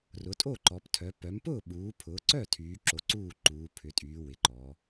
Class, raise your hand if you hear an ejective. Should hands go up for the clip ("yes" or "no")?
yes